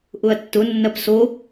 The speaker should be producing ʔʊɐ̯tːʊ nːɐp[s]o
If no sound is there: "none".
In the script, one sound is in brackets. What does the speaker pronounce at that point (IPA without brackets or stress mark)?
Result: s